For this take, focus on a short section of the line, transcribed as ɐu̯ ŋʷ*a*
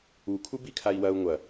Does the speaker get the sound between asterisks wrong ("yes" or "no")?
yes